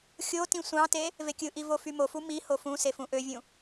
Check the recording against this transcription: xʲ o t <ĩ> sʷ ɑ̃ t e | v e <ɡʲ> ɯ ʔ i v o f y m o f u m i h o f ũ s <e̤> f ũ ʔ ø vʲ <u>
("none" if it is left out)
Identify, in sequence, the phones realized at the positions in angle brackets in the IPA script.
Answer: ĩ, kʲ, e, ũ

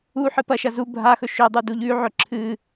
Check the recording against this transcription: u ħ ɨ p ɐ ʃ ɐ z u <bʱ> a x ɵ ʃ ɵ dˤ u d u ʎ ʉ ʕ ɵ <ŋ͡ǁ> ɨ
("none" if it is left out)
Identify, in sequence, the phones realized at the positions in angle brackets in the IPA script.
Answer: bʱ, ǁʰ

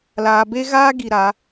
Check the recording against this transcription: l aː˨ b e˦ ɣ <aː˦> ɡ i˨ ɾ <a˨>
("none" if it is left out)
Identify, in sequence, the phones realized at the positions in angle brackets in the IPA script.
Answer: aː˦, a˨˦

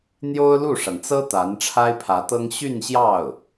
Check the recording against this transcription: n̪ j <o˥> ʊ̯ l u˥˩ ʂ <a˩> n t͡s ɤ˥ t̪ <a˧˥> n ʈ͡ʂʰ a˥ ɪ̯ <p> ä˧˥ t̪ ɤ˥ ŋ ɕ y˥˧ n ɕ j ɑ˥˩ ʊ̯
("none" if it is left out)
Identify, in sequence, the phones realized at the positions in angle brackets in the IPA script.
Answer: o˥, a˩, a˧˥, pʰ

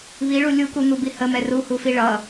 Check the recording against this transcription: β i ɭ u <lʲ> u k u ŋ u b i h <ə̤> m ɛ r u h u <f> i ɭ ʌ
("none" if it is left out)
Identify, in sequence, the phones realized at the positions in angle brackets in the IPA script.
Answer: lʲ, ə, f

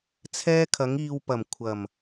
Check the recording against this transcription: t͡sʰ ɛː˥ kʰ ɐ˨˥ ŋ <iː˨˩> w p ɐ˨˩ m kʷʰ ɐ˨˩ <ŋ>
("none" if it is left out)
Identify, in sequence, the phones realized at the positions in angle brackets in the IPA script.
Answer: iː˧, m

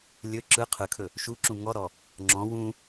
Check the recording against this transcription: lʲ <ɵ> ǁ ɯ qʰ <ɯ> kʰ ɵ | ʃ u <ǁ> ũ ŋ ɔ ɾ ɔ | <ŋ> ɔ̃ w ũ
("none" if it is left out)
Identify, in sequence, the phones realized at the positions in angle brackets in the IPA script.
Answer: ɵ, ɯ, ǁ, ŋ͡ǁ

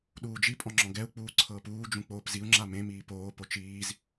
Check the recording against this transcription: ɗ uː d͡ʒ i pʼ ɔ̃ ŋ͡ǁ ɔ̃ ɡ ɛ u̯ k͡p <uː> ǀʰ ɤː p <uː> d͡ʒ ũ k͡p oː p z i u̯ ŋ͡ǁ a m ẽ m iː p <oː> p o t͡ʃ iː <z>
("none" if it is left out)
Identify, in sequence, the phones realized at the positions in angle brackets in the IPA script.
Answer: uː, uː, oː, z

